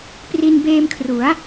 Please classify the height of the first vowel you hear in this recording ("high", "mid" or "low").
high